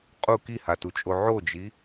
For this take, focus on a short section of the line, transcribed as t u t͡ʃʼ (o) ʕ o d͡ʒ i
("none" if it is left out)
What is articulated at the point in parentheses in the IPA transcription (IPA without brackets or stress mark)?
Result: o